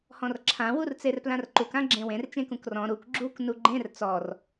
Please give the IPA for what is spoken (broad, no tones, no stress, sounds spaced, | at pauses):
h ɔ̃ r ǁʰ ã w u r t͡s e r p l ã r ǃ u k ã ɡ͡ǁ ẽ w ẽ r t͡ʃ ẽ k ũ k r ɔ̃ ɾ u k ɡ͡ǁ u k n u ɡ͡ǃ ẽ r t͡s ɔ r